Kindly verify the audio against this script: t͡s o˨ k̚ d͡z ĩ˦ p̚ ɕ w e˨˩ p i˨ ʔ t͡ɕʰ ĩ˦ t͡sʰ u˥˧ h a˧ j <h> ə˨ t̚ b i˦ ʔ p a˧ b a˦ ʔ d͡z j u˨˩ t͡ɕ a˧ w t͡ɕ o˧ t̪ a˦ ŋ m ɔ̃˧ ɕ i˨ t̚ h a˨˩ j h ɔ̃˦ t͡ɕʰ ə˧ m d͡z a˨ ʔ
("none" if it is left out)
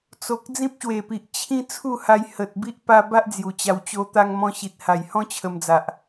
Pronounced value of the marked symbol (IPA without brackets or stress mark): h